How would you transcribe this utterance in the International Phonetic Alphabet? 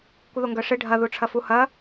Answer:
kʷ ɪ ð o ŋ ɡ œ ʂ ɪ ɖʱ ɐ ð u ʈ͡ʂʰ ɐ f u h ɐ

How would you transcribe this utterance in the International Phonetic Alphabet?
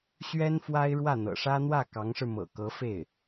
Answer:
ɕ ɥ ɛ˥ n f w a˥ ɪ̯ ɻ w ä˥˩ n̪ ɤ̰˨˩ ʂ ä˥ n̪ w ä˥˩ k ɑ˧˥ ŋ ʂ ɻ̩˧ m ɤ̰˨˩ k ɤ˧˥ f e˥˩ ɪ̯

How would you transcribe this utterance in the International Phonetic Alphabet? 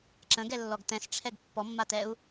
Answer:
ǁ ə̃ ɡ ɛ lː ɔ ɡ t ɛ̃ s ʈ͡ʂʰ ɛ ɡ pː ɔ mː a t ɛ u̯

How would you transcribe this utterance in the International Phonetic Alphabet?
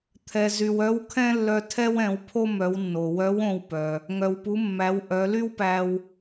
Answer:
t̪ʰ ɛ˩ z y˩ w œ˧˥ w kʰ ɛ̃˥ lː œ˧ tʰ ɛ˥ w ɛ̃˩˧ w pʰ o˥ m œ˩˧ w nː o˩ w œ˧˥ w õ˧ w p œ˩ | ŋ œ˩ w p u˩˧ mː æ˩˧ w ʔ œ˩˧ l y˥ w p æ˧ w

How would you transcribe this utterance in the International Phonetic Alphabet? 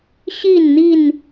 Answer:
ɕ i˥˨ n n̪ i˥˨ n

